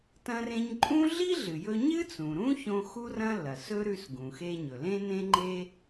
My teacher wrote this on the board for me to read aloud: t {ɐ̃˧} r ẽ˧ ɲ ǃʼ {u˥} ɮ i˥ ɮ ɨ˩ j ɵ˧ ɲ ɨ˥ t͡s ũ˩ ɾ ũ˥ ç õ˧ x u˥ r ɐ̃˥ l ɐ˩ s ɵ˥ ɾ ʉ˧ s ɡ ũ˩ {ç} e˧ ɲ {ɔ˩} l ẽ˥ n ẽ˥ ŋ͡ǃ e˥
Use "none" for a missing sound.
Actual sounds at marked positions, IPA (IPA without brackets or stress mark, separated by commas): ɐ̃˧, ũ˥, x, ɵ˩